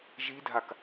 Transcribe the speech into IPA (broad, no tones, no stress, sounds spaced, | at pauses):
ʒ i dʱ a k